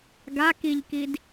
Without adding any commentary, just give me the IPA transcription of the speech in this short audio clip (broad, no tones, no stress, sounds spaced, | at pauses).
ɡ a k i ʎ k i d